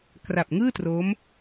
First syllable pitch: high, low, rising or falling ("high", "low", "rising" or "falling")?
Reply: low